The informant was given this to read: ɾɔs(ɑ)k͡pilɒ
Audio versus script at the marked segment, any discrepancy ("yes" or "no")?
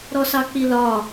no